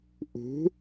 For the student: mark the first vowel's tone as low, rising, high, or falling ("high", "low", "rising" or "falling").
rising